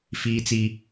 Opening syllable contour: high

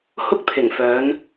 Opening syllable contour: high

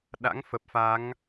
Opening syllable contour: rising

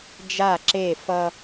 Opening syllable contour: falling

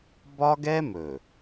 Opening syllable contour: high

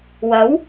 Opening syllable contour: rising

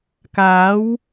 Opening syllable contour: rising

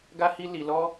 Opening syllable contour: high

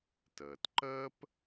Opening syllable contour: low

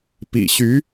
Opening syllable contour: low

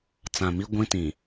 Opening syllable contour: low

